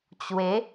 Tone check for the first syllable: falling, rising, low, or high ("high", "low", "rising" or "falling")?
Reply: rising